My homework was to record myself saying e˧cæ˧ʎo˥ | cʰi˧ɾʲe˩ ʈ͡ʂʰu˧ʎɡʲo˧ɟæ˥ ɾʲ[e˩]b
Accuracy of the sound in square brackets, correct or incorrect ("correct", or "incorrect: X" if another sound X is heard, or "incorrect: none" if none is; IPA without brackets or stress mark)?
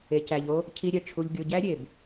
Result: correct